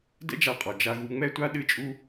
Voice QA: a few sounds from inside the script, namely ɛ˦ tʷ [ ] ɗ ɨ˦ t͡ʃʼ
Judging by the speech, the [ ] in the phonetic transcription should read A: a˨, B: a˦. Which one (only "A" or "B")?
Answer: B